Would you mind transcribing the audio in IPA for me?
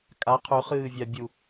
kʼ a qʰ ʉ χ ɨː vʲ a bʲ u

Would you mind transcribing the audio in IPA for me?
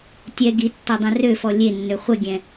tʲ ɛ ɡ i tː ɔ dˤ ɛ̃ r ø f ɔ lʲ e nː ø χʷ ə ɡʲ ɛ̃

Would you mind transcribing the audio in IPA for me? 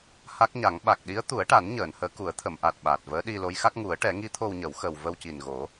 h a˦˥ k̚ ɲ a˨˩˦ ŋ ɓ a˨˩ k̚ ɗ i˧˥ ə̯ t̪ u˨˩˦ ə̯ ʈ a˨˩˦ n ɲ əː˨˩˨ n h əː˧˥ k u˨˩˦ ə̯ t̪ʰ ə˨˩˨ m ʔ a˨˩ t̚ ɓ a˨˩ t̚ v əː˧˥ ɗ i˧ l o˧˥ j x a˦˥ k̚ ŋ u˨˩˦ ə̯ ʈ ɛ˨˩˦ ŋ i˧˥ t̪ʰ o˧ w ɲ ə˨˩˦ w x ə˨˩ w v ə˧ w c i˨˩ n ɣ o˨˩˦

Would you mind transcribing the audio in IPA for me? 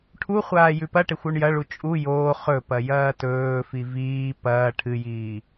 ʈʰ u χʷ aː j ʉ p ɐ ʈ e xʷ o ɳ j ɐ ɭ u t͡ʃʼ u j oː χ ɵ p ɐ j ɐː t ɵː f i v iː p ɐː ʈʰ ɨ j iː

